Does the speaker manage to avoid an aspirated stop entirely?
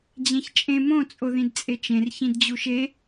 yes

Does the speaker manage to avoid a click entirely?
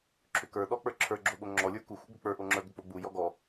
no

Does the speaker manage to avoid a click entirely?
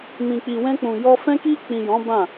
yes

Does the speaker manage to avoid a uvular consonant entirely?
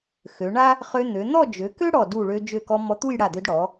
no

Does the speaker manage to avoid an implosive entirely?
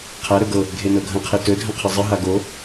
yes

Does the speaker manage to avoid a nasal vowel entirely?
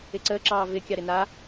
yes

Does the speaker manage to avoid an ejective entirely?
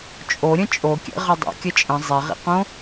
no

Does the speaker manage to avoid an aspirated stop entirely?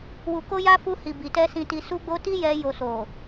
yes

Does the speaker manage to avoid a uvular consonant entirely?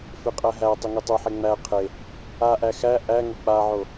no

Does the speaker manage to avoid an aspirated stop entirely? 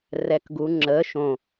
yes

